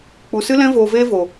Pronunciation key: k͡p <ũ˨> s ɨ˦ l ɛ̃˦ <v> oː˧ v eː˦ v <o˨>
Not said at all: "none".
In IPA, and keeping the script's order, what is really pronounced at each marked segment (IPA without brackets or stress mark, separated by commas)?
u˨, v, o˨